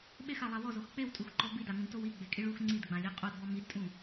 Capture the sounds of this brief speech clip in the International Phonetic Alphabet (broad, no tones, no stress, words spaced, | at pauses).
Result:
ɓexalˠa wɔzox k͡pewtʼuxǃɔ bidaŋũdtow iɡ͡bekʼiɭ ux ŋ͡ǀidɡ͡bãlʲa qʼodbɔ midtʼũ